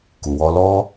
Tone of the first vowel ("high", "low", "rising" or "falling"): low